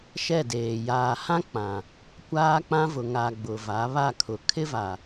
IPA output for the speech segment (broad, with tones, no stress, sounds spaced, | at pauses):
ʃ ɛ˦˨ d eː˨ j aː˨ h ã˦ k͡p ã˨ | kʷ aː˦ k͡p ã˦ v ʊ˨ ŋ a˨ ɡ͡b ʊ˨ v a˨˦ β a˦˨ kʰ ʊ˨ kʰ ɪ˦ v a˨